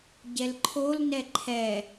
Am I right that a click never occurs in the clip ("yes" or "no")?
no